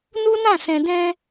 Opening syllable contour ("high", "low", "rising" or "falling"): high